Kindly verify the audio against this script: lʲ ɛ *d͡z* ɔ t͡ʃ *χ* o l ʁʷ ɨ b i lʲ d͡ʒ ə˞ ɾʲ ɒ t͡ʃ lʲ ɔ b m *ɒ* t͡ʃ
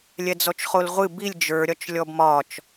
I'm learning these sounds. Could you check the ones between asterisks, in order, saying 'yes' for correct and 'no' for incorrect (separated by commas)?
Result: yes, yes, yes